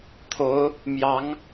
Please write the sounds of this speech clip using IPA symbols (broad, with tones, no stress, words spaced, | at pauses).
t̪ʰo˧˥ʊ̯ | mjɑ˧˥ŋ